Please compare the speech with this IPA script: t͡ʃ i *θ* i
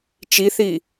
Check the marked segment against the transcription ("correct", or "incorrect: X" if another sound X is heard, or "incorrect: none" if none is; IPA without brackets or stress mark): correct